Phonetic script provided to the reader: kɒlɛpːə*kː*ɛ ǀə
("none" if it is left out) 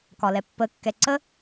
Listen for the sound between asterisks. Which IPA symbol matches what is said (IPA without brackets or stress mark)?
kː